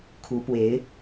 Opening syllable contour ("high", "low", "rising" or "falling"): rising